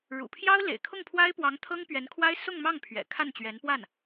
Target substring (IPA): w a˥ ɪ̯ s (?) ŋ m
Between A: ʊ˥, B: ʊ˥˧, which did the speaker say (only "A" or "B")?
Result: B